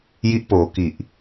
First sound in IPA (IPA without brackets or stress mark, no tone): j